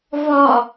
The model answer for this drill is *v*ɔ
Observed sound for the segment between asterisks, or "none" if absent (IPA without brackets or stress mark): v